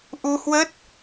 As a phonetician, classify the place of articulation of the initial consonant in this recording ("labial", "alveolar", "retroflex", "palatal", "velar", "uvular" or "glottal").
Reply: glottal